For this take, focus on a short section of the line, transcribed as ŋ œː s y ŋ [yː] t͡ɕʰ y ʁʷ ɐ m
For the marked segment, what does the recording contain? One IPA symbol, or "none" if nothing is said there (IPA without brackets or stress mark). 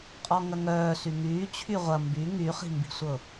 yː